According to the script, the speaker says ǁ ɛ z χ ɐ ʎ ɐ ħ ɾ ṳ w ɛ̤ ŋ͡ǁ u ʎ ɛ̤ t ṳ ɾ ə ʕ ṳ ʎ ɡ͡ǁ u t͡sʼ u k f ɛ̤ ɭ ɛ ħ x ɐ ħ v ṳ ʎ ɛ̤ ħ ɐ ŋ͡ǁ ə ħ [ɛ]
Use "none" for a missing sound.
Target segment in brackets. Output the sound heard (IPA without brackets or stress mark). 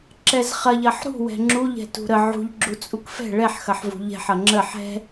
ɛ̤